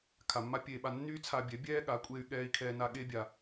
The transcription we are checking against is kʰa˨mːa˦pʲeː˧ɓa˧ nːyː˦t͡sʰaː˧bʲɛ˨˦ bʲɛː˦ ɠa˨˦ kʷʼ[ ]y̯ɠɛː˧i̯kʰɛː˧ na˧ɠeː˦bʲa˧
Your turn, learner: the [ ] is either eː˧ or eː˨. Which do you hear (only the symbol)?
eː˧